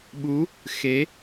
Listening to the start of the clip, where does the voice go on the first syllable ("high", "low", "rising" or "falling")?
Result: rising